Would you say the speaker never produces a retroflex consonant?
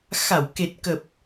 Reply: yes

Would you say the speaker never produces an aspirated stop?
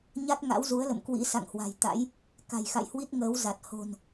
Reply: yes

